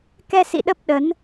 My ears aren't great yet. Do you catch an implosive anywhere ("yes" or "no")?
yes